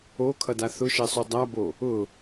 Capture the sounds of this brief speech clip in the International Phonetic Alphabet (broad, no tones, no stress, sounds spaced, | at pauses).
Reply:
o kʰ ʌ d a θ ʊ ʃ ɛ sˤ u dˤ a b o | ʊ